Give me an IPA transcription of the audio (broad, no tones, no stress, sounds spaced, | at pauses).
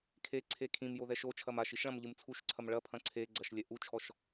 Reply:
kʰ e ǀʰ e kʰ ĩ m j o ð ɛ ʃ o t͡ʃʰ ɐ m a ʃ i ʃ ɭ ɐ̃ m ʎ ɨ m t͡sʰ u ʃ ǀʰ ɐ m ɭ ɐ pʰ ɐ̃ ǀʰ e ɡ͡ǀ ɐ ʃ lʲ ɛ ʔ u t͡ʃʰ ɔ ʃ